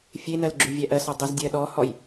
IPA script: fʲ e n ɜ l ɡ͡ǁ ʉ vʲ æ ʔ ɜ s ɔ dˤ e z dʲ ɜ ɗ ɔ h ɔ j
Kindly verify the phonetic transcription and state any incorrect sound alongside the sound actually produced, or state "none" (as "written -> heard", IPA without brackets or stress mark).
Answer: none